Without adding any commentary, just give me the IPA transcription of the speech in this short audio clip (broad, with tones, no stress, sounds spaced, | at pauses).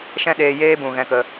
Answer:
ʃ ɛ̃˦ ɗ eː˧ j eː˦ b ũ˨ ɣ ɛ̃˦ k ə˧